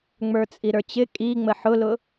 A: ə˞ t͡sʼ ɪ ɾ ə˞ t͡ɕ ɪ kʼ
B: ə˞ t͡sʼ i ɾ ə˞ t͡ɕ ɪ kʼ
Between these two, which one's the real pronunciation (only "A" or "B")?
B